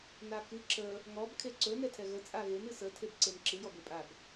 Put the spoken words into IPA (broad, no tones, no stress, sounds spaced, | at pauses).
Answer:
n a k ɨ ǁ ə | ŋ ɔ b kʰ e ǀ ɵ n ɛ tʰ ɛ ɣ ə t͡sʼ a ɣ e n ɨ s ə tʰ e b ǀ e n ǁ ɨ j ɔ b e pʼ a b